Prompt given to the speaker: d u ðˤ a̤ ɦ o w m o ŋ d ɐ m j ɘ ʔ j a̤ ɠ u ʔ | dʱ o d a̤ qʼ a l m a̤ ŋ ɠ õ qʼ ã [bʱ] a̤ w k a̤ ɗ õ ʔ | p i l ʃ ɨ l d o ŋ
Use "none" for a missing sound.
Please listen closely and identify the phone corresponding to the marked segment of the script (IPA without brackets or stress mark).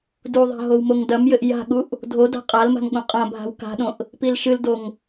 bʱ